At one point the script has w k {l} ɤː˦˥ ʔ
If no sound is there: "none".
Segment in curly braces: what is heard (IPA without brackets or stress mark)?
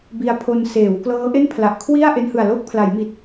l